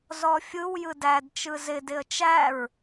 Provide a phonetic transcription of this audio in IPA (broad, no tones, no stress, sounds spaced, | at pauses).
z ɔ fʲ ɯ w j ɯ d æ d t͡ʃ ɯ z ɪ d ɪ ə̯ t͡ʃ æ ɹ